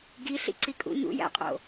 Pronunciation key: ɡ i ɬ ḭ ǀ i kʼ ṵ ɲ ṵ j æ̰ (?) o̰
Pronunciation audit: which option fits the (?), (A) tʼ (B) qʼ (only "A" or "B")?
B